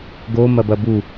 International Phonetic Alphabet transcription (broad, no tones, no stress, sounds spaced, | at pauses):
ɡ o m ɐ b ɐ b u